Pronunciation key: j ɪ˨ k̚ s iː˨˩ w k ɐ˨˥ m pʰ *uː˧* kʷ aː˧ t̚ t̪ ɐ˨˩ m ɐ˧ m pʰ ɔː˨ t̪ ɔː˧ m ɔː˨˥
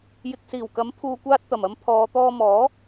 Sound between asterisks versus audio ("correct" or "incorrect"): incorrect